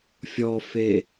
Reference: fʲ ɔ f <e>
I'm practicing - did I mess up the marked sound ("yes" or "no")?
no